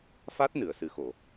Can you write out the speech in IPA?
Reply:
fa˦˥t̚ nɨ˨˩˨ə̯sɨ˨˩xo˨˩˨

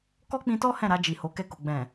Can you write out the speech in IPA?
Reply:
kɔ˦k͡pĩ˧tɔ˦ hɛ̃˦˨ɾa˧ d͡ʒi˨ho˨˦kɛ˦˨ko˨ ɡ͡bɛ̃˨

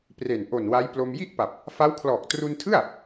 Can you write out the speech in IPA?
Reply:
pre˨˩n ʔo˨˩nwa˦˥jplo˧m ji˥˩ʔpa˨˩p̚ | fa˦˥wkʰlɔː˨˩k̚ tru˧ntʰɯ˥˩a̯

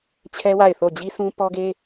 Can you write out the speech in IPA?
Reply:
t͡ɕʰɛ˦ wa˦˨ɪ̯θo˦˨ d͡ʑi˦sũ˦ pɔ˦ɡe˦

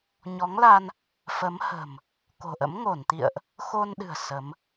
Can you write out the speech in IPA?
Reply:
ɲɔ˨˦ŋla˧n | fə˨˦mhə̤˨˩m | ko̤˨˩ʔə̰˧˥m ŋo˧˩nt̪ḭ˧˨ə̯ʔ | xo˧nɗɨ̤˨˩ə̯ sə˨˦m

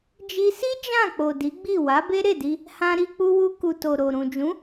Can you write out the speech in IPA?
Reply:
d͡ʒi˧si˦ d͡ʒã˦˨k͡po˨ di˨˦ɡ͡bi˦˨ wa˨˦be˦ɾe˦˨di˧ | hã˧ɾi˧k͡pu˧ wu˧ ku˨to˨ ɾo˨ ɾũ˨d͡ʒũ˨˦

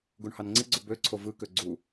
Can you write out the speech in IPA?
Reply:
ɡuɳhɑnŋ͡ǀiɡ͡ǀo bø ǀʰovɯkø ɡ͡ǀu

